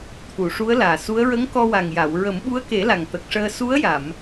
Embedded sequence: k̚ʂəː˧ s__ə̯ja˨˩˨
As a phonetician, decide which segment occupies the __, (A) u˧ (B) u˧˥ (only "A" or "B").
B